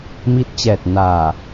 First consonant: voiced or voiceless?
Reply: voiced